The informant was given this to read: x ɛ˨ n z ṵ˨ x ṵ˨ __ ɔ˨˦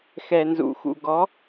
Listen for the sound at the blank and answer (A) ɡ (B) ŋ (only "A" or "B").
A